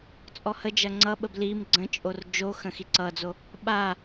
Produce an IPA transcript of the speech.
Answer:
t͡sʼ ɔ h ə d͡ʒ ɐ ŋ͡ǀ ʌ ɓ ə b l i m ɡ͡ǀ ə̃ t͡ʃʼ o r d͡ʒ o x ə̃ x i ǀ ʌ d͡z o | ɓ a

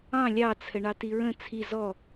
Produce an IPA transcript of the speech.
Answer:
ɑ̃ lʲ ɑ t͡sʰ ə ɳ ɑ t i ɹ ə̃ t͡sʰ i z ɔ

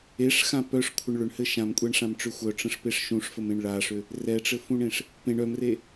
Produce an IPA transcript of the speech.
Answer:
e ʂ x ã p œ ʂ kʷʰ ə ɳ ɭ ʏ ɳ h ɘ ʃ ã m kʷʼ ɛ ɳ ʂ ã m ʈ͡ʂ ʏ xʷ œ ʈ͡ʂ ə̃ ʂ p e ʂ ʃ ũ ʂ f ə m ẽ ɳ ɭ a ʂ ʏ | r ɛ ʈ͡ʂ ɘ f ũ ɳ ẽ ʂ | p ẽ ɳ œ m r e

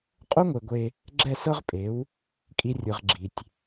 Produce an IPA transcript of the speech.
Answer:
qʼ o˦ ŋʷ e˨ ɡʷ e˧ | ɡ͡ǁ ɛ˦˨ s ɤ˦ ʁ pʼ e˨˦ w | kʼ i˧ rʲ ɯ˨ ʁ ɡ͡ǁ i˨ tʲ

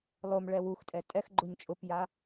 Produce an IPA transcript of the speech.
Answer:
lˠ o m ɭ ɛ w u x tʼ ɛ tʼ ɛ x ɡ͡ǃ ʊ ɲ t͡ʃʼ ʊ p j a

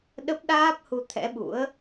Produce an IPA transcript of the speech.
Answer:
ɗ ə˦˥ p̚ ɗ aː˦˥ p̚ h u˧ t̪ʰ ɛ̰˧˥ ɓ ṵ˧˥ ə̯

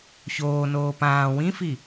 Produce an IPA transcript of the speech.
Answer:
ç oː n oː p ãː w ĩ f i

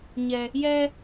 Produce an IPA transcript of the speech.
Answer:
ɲ ɛ˨ | j ɛ˦

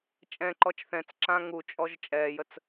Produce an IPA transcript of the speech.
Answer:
t͡ʃʼ ɛ̃ ǃ ɔ t͡ʃ θ ɛ̃ t͡s ǁ ã ŋ u t͡ʃʼ ɔ ʒ t͡ʃʼ ɛː j ə t͡s

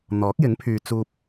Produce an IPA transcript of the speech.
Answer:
n̪ ɔː˨˥ k̚ j ɪ˨˥ ŋ pʰ yː˨ t͡s uː˨ p̚

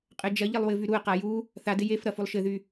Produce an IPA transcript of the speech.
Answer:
qʼ ɘ d͡ʒ ɐ ʎ ɘ lˠ w ɘ v y ɾ u ə̯ q a j u | θ a d ɪ j e f ɾ ɐ f u lˠ ʃ ɘ ð y

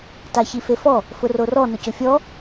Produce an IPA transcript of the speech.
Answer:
t a ç i f e f ɔ | f ʊ r o r ɔ n ʊ c ʊ fʲ ɔ

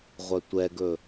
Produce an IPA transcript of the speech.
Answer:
ʁʷ œ tʷ ɛ ɡ ɵ

